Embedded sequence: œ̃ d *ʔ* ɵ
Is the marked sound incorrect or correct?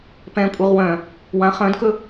incorrect